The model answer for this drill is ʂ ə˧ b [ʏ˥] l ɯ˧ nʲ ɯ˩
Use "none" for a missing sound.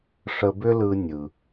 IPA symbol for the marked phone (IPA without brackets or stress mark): ʏ˥